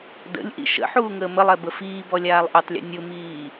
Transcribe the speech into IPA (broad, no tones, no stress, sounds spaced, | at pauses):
d ə̰ lʲ ʔ ḭ ʃ ə̰ ħ uː ŋ əː m ə lˠ ɛ b ə f iː b ɔ lʲ aː lˠ ʔ ʊ tˤ lʲ ə̰ nʲ ʊ m iː